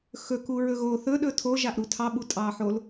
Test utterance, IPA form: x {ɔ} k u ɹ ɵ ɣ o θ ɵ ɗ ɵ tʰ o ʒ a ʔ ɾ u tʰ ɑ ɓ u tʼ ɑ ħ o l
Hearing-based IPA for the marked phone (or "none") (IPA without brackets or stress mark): ɵ